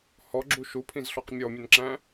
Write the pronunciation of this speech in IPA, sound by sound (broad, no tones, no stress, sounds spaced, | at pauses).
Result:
h ɔ ɡ͡ǁ u ʃ u pʰ ĩ z ɬ ɔ q mʲ ɔ mʲ ʊ n ǁ æ̃